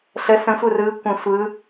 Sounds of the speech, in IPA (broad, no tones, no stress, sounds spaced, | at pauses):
ɬ ə s ə̃ sʷ ɯ r ɯ kʷ ə̃ sʷ ɯ